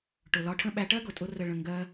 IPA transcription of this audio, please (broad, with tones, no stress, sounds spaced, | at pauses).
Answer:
ʈ ʊ˨ l ɒ˧ ʈʰ ə̃˦ ɓ æ˧ ʈ ɜ˦ ɡ ʊ˨ tʼ ʊ˧ r ə˨ ɭ ə̃˨ ŋ ɡ ɜ˧